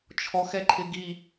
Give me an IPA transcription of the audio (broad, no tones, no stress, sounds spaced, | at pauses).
t͡ʃʰ ɔ x ɛ ǃʰ ɪ ɡ i